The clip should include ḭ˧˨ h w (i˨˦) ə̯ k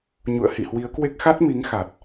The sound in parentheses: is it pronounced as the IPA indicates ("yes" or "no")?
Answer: yes